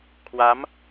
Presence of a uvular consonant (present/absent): absent